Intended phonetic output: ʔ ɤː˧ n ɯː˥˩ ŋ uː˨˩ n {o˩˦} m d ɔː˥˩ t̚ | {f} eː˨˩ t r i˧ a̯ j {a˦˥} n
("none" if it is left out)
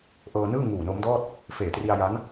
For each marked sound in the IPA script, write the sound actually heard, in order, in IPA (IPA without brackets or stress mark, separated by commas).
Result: o˦˥, f, a˦˥